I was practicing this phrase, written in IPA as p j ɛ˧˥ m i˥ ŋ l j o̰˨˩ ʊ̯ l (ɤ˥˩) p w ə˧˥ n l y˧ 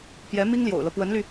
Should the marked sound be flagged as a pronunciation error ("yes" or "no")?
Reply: yes